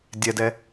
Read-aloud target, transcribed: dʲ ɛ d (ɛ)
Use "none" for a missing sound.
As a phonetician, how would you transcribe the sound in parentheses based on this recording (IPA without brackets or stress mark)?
ɛ